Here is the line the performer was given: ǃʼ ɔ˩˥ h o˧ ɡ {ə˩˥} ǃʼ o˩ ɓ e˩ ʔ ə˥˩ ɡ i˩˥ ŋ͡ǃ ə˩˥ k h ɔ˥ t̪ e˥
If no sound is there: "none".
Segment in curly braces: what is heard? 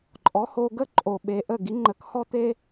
ə˥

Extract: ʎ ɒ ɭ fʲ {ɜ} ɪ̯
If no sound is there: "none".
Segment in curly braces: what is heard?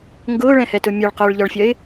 ɜ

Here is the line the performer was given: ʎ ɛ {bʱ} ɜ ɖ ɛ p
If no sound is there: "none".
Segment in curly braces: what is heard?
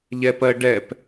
p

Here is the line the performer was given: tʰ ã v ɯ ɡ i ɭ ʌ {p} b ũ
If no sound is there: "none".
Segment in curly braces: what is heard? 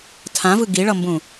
m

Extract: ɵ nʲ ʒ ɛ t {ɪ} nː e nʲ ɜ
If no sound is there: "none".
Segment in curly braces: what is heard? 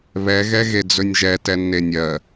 ɛ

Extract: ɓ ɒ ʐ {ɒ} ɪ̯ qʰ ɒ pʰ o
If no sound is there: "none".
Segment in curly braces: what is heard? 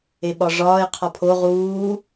ɒː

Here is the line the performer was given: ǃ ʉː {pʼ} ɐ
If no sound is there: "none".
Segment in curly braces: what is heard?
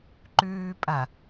pʼ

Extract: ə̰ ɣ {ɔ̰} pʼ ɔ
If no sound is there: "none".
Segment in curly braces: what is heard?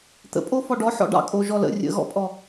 ɔ̰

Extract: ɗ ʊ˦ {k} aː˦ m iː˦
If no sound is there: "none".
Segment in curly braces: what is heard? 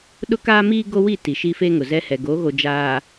k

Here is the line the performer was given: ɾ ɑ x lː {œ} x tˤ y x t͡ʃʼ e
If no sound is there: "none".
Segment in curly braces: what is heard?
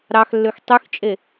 ø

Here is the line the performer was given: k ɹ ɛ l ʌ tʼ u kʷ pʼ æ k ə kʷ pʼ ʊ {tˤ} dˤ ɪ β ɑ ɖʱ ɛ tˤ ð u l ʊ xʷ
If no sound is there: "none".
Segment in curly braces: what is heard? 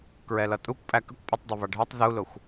tˤ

